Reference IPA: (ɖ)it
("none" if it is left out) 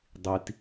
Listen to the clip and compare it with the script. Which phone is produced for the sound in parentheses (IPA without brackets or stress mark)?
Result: dˤ